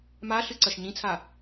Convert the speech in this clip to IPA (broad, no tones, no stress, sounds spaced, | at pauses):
m a ɬ ɨ ǀ ɐ ʃ ɲ ĩ t͡sʰ a